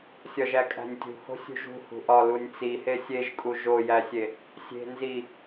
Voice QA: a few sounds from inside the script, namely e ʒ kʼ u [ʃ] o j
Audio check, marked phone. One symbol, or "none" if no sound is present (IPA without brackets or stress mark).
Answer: ʒ